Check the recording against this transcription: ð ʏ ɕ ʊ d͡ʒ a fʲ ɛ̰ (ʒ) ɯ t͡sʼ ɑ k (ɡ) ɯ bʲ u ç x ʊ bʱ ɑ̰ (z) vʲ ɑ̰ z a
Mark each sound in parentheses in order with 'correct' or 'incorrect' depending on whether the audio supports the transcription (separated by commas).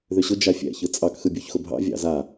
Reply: incorrect, incorrect, incorrect